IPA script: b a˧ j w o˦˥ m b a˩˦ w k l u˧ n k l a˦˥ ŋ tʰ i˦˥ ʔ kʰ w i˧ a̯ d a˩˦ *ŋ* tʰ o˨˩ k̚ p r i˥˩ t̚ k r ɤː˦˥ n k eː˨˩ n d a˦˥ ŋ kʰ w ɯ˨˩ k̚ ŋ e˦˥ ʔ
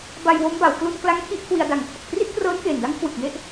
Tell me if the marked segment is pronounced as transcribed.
yes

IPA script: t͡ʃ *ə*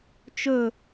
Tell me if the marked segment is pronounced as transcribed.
no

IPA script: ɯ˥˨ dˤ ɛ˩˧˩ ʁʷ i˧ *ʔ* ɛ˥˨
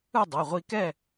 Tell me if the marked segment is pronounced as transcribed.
no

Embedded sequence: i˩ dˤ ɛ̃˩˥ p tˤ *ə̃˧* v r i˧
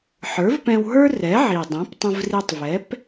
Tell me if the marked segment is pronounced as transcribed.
yes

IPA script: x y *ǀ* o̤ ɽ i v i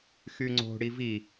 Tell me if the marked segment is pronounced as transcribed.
no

